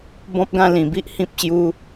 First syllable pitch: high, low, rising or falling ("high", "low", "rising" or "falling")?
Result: high